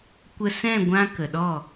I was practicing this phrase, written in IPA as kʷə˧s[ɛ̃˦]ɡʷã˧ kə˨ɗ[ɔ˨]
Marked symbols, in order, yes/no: no, no

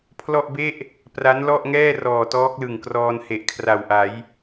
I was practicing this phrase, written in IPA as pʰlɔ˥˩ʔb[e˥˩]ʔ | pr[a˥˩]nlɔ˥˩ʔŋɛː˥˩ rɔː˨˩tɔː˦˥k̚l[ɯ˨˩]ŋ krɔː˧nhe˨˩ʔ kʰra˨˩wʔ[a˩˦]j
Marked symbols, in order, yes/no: yes, no, yes, yes

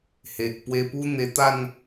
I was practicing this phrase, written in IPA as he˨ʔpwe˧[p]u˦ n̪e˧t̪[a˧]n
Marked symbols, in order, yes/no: yes, no

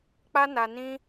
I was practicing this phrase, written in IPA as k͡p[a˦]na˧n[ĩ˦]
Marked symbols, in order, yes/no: yes, yes

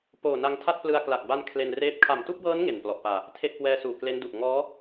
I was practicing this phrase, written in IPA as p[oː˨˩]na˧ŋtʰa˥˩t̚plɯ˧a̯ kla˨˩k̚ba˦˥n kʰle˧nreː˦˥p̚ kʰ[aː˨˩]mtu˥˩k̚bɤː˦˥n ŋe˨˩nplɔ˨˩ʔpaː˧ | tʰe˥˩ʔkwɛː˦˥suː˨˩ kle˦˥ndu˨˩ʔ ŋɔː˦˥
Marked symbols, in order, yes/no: yes, no

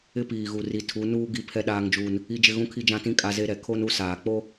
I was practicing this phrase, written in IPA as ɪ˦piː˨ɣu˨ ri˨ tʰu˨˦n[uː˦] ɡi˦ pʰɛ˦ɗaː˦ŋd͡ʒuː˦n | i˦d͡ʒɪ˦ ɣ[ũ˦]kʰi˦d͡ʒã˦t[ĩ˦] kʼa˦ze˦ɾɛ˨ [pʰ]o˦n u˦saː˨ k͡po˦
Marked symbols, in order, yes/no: yes, yes, yes, no

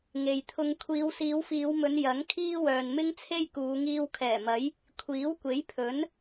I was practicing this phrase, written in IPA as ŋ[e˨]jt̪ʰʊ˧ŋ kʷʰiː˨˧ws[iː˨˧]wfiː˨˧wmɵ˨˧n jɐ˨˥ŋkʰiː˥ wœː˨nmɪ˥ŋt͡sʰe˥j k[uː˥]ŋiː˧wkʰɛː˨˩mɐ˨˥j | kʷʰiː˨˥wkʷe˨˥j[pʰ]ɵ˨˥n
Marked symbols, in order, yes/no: yes, yes, no, yes

